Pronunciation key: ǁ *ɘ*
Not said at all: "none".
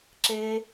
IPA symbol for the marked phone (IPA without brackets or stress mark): e